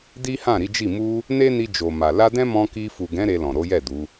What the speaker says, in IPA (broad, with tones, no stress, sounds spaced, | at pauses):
d i˦ h ã˦˨ ɾ i˨˦ d͡ʒ i˦˨ m u˧ | n e˦ n i˧ d͡ʒ o˨ m a˨ l a˧ d ɛ̃˦ m ɔ̃˧ k i˧ f u˨ ɡ ɛ̃˨˦ ɾ e˧ l ɔ̃˨ ɾ o˨˦ j ɛ˦˨ d u˨˦